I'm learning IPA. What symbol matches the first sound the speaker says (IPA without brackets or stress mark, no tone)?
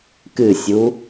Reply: k